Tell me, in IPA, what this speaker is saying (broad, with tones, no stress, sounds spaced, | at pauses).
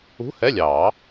ṳ˧˥˧ h ɛ˧˥˧ lʲ ɑː˨˩˦